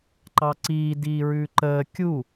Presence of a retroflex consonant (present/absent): absent